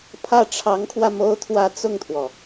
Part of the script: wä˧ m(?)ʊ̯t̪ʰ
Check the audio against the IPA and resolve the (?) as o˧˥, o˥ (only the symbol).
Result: o˥